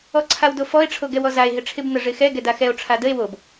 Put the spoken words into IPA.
ɔ ǀʰ a w d o f ɔ e̯ ʈ͡ʂʰ o ɡ ɛ w ɔ z a e̯ ɦ ɪ ʈ͡ʂʰ ɪ b n ə ʐ ɪ x ɛ ɡ ɛ d a x ɛ o̯ ʈ͡ʂʰ a d ə e̯ w o b

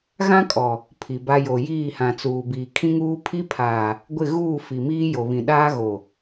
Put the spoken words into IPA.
ɣ ã˦ kʼ ɔ˨ | pʰ i˨ b a˦ j o˨ j iː˦˨ h ã˨ t͡s uː˨ b iː˨ kʰ ĩ˦ ŋ uː˦ pʰ i˦ pʰ aː˨ | ɡʷ ɪ˦˨ ɣ uː˦˨ f i˨ m iː˦ j o˨ β ĩ˨ ɗ aː˦ ɣ o˨

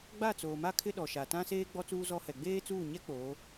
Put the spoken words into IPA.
ɡ͡b a˦˨ t͡s oː˨ m a˦ kʰ ɪ˦ ɗ ɔ˨ ʃ a˨ t ã˦ s eː˦ ɡ͡b ɔ˦ t͡s uː˦ z ɔ˦ h ɛ˨ ɡ͡b eː˦ t͡s uː˦˨ ɲ ɛ˦ k͡p oː˨˦

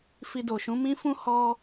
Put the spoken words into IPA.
f i˧ d o˨ ʃ ũ˨˦ m ĩ˦ f ũ˦ h ɔ˧

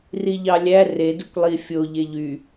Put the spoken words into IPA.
r i ʎ ɑ lʲ æ r e d u kʷ lˠ i fʲ o ʎ e ʎ y

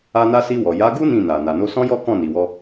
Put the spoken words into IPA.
a˧ n a˧ s i˧ w ɔ˨ j a˨˦ ɡ u˦ n ĩ˦˨ n a˨ n a˨ n o˧ s ɔ̃˦ j ɔ˦ k ɔ̃˦˨ n i˨ w ɔ˧

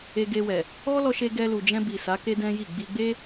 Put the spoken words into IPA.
e˧ ɡ e˧ w ɛ˨ | ɔ˦ l ɔ˧ ʃ e˧ ɡ ɛ˧ l u˨ d͡ʒ ɛ̃˧ b i˨ s a˨˦ k e˦ d ɛ̃˦ j i˦˨ ɡ͡b i˧ ɡ͡b e˦

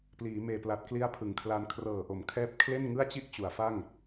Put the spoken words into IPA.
p l iː˩˦ m eː˨˩ p l a˨˩ t̚ k l i˦˥ a̯ pʰ ɯ˩˦ ŋ kʰ l a˧ n kʰ r ɤː˨˩ ʔ o˩˦ m kʰ ɛː˦˥ p̚ kʰ l e˥˩ n ŋ ɯ˥˩ a̯ t͡ɕ i˥˩ ʔ t͡ɕ u˩˦ a̯ f a˥˩ ŋ

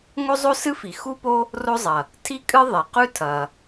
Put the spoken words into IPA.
ŋ o˥ zˤ o˥ s ɨ˥ f i˩ x u˥ p o˥ | r o˥ zˤ ɐ˩ | tʰ i˥ kʼ ɨ˥ ðˤ e˩ q ʉ˥ tʰ ɐ˩

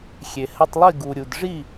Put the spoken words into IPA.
xʲ e˨ h ɘ˧ tˤ lˠ i˦˨ ɡ u˨ ɾʲ u˨ d ʐ i˦˨

